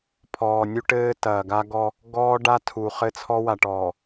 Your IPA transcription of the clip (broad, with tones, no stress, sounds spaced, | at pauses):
pʰ ɔː˨ nʲ u˦ ʈ ɘː˦ t ɐː˨ ɡ a˦ ɡ ɔ˦ | ɡ ɔː˦ ɖ a˦ tʰ u˨ χ ɘ˦ t͡sʰ ɔ˦ w a˨ ʈ ɔː˨